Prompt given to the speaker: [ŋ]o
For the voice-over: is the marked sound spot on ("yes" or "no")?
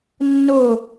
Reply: no